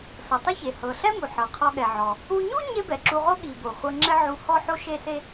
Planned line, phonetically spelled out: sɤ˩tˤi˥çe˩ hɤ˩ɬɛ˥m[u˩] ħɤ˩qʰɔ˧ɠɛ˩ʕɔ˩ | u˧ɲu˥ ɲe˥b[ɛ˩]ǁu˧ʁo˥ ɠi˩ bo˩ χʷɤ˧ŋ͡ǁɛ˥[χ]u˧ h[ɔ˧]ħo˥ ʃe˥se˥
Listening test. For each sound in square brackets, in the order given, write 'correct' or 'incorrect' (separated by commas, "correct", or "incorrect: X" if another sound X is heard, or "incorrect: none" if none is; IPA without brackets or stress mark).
correct, correct, incorrect: ʕ, incorrect: ɔ˥